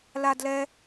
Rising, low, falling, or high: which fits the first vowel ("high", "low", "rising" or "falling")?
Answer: high